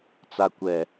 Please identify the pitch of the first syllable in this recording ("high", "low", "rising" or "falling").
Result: low